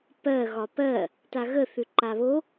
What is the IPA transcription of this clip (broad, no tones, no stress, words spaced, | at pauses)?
pɜ ɣɒpɜ | taɣə θʉǃaβo